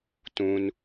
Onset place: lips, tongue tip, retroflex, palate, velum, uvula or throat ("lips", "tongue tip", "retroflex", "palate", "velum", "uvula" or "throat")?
tongue tip